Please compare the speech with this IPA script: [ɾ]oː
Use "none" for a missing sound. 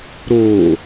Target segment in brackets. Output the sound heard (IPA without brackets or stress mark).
ɾ